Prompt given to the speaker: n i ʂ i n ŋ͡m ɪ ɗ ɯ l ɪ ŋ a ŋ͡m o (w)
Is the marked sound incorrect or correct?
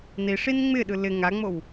correct